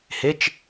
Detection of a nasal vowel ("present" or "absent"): absent